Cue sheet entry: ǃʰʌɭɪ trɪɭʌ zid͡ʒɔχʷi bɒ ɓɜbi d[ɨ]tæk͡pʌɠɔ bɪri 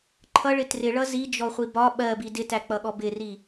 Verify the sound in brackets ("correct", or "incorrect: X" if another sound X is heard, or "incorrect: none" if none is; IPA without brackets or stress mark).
incorrect: ɪ